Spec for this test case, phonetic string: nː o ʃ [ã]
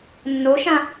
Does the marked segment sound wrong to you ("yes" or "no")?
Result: no